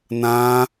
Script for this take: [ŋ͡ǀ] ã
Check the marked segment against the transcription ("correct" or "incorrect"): incorrect